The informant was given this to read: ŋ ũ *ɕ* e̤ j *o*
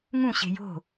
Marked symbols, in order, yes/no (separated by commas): yes, no